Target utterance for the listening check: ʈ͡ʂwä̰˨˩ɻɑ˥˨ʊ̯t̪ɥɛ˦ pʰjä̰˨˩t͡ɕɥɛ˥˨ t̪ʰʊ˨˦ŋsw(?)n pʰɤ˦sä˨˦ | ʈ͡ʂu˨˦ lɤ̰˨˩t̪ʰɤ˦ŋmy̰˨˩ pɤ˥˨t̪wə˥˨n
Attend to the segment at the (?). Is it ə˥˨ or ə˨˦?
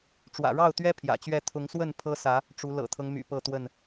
ə˥˨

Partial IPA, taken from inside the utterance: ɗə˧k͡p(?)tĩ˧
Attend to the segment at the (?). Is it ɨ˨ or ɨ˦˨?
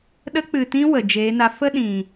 ɨ˨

